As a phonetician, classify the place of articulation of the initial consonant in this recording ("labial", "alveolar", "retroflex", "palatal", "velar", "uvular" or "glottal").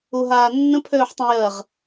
glottal